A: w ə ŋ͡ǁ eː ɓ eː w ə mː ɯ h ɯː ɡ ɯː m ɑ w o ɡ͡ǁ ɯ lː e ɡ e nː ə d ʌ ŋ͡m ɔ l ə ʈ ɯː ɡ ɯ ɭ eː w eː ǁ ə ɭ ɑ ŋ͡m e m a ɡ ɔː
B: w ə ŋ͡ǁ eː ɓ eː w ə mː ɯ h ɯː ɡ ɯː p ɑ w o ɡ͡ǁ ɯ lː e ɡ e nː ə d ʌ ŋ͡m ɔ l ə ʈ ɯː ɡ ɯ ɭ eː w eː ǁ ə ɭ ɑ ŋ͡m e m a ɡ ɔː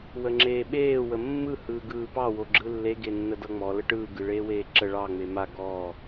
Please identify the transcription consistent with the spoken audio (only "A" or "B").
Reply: B